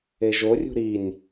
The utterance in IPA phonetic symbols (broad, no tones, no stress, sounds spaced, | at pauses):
e ʒ o rʲ ṳ ɾ i nʲ